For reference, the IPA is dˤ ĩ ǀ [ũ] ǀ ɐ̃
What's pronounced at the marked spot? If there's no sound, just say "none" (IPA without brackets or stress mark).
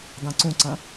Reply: ũ